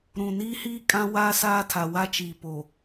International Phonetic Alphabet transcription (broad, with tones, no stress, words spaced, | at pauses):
ɾũ˨niː˦hiː˦ kʼã˦waː˦ saː˦tʰa˨wa˦t͡ʃiː˨ po˨